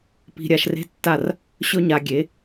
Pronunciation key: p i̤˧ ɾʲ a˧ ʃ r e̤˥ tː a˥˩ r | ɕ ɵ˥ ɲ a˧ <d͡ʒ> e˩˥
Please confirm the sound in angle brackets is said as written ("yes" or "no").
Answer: no